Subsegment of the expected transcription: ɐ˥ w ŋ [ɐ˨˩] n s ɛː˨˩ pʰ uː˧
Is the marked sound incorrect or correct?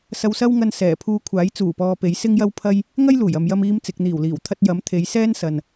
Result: incorrect